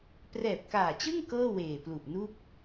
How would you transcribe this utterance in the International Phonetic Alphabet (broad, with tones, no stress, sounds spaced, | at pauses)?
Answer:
p r ɛː˨˩ p̚ k aː˨˩ t͡ɕ ɯ˥˩ ŋ k ɤː˥˩ w eː˨˩ p l u˨˩ ʔ n u˥˩ k̚